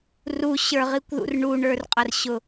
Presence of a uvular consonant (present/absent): present